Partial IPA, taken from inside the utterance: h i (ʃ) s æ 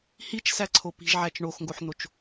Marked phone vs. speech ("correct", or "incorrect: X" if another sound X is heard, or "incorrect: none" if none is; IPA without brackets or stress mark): incorrect: t͡ʃ